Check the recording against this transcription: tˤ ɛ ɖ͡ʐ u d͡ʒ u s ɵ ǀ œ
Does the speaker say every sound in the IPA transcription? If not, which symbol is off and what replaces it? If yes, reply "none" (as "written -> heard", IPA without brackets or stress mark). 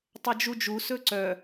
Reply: ɖ͡ʐ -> d͡ʒ